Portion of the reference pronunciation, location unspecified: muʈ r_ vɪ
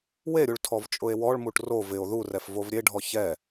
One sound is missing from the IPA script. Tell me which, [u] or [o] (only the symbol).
o